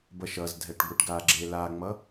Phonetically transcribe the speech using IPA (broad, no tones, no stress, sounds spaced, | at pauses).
b ʌ ʃ ʌ z dʱ ɛ ʈ ɡʷ i ʈ ɡ a ɡ͡ǁ e l a ŋ͡m ʌ